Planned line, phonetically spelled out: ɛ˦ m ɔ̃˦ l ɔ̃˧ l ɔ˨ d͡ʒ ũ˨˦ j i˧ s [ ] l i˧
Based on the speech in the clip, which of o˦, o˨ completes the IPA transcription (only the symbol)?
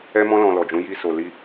o˨